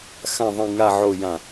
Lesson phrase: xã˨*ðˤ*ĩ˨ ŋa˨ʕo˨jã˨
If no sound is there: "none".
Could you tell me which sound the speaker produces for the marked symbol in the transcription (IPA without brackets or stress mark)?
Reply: ðˤ